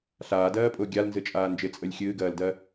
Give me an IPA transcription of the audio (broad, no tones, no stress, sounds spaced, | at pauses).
ɬ aː d ɜː pʼ ʊː ɡʲ a l n z ɨ t͡ʃʼ aː n d͡ʒ ɪ t͡sʼ ə lʲ xʲ ɨː ɡ ɜː l d ɜ